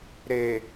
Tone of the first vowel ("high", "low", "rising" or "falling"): low